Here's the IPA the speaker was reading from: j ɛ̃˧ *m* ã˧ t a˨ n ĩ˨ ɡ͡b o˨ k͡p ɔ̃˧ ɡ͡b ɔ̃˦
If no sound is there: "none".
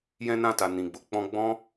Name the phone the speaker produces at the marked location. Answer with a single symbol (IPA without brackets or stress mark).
n